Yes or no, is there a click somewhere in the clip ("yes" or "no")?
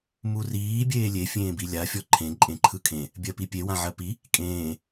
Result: yes